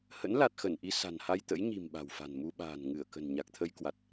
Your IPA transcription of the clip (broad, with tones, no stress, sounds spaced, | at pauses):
h ə̰˧˥ n l a˨˩ t̚ x ə˧˩ n ʔ i˧ s a̤˨˩ n h a˧ j t̪ ə̰˧˥ j ɲ i̤˨˩ m ɓ a̤˨˩ w f a̤˨˩ n m u˧ ɓ a̤ː˨˩ n ŋ ɨ˧˩ ə̯ k ə̤˨˩ n ɲ a˨˩ k̚ t̪ʰ ə˧ j k w a˨˩ t̚